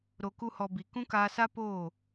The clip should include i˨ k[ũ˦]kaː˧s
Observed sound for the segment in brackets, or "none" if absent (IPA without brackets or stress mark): ũ˦